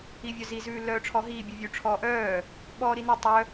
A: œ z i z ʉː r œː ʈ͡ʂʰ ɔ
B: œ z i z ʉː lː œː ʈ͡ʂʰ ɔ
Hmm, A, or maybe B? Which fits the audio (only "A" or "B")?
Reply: B